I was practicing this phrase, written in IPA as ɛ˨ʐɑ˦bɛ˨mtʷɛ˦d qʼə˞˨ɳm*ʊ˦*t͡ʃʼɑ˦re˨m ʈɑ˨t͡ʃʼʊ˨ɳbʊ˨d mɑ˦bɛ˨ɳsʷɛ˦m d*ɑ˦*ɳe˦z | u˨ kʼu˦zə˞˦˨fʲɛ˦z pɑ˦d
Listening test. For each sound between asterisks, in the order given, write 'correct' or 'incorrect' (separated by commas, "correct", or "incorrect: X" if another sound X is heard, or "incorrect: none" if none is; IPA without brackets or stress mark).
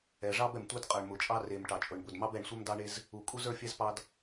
incorrect: ʊ˨, correct